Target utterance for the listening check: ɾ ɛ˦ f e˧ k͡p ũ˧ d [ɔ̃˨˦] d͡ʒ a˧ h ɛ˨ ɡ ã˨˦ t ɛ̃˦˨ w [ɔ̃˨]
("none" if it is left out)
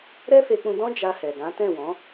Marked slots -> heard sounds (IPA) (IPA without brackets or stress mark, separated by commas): ɔ̃˦, ɔ̃˨˦